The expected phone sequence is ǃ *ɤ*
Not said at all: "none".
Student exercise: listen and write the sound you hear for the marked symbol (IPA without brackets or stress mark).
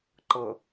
ɤ